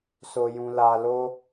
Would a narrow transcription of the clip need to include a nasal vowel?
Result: yes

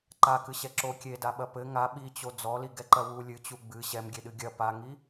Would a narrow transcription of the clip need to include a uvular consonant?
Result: no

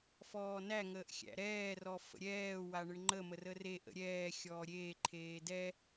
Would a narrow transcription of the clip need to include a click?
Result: yes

